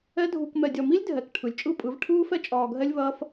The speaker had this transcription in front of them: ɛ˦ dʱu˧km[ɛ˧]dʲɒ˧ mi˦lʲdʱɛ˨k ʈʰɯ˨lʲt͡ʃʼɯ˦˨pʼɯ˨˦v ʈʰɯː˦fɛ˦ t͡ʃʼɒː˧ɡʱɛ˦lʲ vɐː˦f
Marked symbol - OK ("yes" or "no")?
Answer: yes